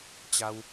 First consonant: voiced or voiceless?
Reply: voiceless